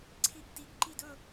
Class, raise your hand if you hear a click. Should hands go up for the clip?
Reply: yes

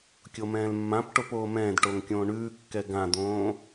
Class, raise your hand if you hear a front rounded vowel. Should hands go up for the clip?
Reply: no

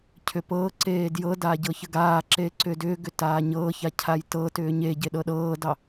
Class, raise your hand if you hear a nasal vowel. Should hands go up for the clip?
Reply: no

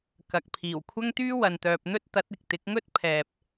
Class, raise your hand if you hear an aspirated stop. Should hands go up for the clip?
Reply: yes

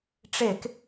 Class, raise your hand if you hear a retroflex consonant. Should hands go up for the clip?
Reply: yes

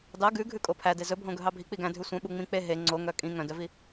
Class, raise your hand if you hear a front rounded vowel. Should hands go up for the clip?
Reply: yes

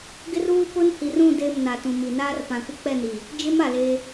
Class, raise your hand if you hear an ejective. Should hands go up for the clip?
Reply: no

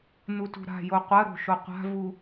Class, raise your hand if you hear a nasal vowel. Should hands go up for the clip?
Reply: no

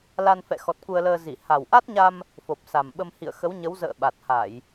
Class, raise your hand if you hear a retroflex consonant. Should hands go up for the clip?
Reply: no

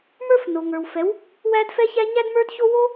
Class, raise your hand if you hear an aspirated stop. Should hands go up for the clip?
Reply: no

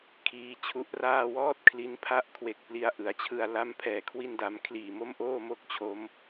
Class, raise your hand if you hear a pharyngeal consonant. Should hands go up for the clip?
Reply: no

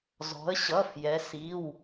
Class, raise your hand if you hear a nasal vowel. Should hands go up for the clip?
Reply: no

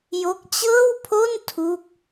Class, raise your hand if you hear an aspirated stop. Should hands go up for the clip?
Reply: yes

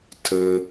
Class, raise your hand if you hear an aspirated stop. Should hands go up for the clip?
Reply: yes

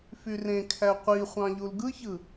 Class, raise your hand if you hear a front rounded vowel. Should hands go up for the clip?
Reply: yes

